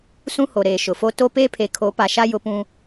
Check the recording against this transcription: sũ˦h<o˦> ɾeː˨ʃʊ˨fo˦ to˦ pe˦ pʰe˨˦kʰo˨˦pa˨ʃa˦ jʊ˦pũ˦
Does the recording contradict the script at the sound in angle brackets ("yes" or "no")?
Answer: yes